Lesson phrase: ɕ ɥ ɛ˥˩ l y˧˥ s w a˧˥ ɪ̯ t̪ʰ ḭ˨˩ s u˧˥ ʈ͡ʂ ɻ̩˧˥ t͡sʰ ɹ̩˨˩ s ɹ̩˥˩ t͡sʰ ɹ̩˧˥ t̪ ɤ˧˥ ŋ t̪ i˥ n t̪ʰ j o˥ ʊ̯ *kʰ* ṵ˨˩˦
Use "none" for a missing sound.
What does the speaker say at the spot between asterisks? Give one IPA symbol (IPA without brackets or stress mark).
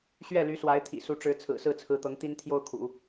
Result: kʰ